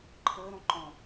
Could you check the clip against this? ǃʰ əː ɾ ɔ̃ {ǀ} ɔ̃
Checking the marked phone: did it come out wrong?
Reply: yes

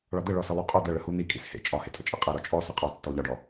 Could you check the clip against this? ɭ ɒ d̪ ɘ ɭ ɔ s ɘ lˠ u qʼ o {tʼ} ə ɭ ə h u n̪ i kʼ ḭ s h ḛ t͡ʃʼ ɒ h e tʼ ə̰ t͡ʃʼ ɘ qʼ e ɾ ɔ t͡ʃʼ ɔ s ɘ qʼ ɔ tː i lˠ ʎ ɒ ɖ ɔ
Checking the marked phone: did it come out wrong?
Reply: yes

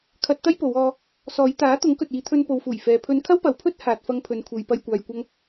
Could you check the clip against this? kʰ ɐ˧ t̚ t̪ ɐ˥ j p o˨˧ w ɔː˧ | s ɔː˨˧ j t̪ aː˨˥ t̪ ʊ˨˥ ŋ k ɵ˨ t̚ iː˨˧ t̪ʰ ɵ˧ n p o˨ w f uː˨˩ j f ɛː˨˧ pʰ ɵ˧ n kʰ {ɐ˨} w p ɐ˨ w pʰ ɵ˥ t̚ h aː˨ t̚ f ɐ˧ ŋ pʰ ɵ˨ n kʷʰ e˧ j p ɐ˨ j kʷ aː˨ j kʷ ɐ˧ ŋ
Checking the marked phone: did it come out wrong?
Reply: yes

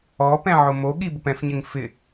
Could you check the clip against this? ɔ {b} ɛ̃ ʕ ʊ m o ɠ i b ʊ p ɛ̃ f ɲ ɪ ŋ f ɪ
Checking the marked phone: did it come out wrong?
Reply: yes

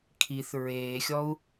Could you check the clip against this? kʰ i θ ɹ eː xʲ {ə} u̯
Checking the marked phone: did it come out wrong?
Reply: yes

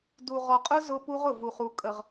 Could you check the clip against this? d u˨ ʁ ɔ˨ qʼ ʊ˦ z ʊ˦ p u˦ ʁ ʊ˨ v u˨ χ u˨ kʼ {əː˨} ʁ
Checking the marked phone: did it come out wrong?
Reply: yes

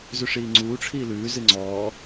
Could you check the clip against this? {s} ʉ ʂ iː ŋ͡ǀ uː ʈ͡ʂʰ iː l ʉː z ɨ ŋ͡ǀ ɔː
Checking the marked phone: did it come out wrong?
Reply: yes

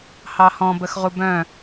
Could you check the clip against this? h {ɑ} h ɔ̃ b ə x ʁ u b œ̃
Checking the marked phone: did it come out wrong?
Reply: no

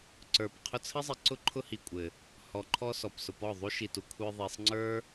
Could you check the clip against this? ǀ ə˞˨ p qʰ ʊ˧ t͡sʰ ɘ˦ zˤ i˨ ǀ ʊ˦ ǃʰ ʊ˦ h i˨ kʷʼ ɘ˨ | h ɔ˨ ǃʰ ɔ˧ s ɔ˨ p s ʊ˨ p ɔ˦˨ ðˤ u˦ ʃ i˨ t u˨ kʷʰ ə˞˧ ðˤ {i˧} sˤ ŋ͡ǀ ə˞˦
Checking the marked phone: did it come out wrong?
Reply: yes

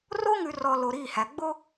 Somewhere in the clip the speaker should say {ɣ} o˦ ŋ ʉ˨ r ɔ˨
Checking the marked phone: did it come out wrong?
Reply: yes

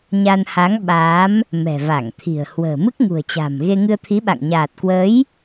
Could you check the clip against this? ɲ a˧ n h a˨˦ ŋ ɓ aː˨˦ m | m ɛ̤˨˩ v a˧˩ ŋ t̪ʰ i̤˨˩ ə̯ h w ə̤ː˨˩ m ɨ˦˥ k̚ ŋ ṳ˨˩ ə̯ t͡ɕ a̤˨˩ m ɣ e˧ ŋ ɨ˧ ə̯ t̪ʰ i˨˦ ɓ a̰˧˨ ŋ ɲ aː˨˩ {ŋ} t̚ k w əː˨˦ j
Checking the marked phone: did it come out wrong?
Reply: yes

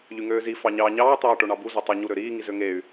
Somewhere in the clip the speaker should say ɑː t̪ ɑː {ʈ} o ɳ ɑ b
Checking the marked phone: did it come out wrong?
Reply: no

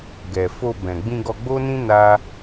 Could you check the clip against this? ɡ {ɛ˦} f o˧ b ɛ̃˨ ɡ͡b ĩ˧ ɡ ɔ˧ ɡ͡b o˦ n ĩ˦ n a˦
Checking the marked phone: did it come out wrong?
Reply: yes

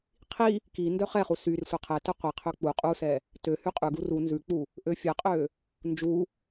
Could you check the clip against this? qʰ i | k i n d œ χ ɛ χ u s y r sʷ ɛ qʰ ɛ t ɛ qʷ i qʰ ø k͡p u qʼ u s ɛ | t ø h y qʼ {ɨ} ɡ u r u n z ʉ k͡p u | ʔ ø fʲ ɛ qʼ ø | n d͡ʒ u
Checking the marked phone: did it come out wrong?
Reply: yes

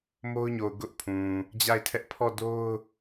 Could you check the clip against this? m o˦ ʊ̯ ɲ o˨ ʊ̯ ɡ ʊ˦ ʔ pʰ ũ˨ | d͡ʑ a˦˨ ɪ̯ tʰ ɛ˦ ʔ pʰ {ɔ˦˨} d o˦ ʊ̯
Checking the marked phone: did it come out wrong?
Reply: no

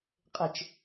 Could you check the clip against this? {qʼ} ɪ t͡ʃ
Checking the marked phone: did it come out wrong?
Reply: no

